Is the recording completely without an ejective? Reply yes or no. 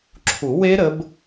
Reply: yes